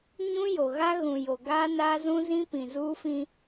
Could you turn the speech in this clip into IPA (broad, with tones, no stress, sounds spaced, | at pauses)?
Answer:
ɲ ũ˦ j o˨ ɣ a˦ ɣ ũ˨ j o˨ ɡ aː˦ n aː˦ z ũ˦ z ĩ˦ p ĩ˨ z uː˦ f ĩ˦